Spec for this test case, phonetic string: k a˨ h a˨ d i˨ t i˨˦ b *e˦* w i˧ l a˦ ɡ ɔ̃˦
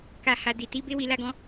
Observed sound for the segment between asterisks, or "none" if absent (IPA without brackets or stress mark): e˦